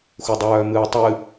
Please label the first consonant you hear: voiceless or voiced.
voiceless